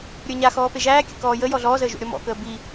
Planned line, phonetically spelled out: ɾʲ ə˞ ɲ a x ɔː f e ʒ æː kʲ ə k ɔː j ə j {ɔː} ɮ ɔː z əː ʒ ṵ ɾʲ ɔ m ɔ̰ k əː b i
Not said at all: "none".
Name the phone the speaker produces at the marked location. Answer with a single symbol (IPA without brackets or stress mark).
ɔ